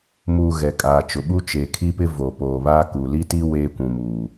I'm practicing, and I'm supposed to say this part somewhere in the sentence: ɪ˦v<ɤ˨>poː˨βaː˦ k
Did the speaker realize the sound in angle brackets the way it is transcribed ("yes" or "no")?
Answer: no